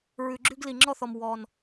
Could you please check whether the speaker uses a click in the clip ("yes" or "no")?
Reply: yes